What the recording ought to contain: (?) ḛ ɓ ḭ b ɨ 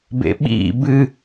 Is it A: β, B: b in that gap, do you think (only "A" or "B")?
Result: B